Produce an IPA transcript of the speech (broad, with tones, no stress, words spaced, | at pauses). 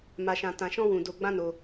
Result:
ma˧ʃã˧tã˧ ʃɔ̃˦wũ˧ do˧ɡ͡bã˦no˧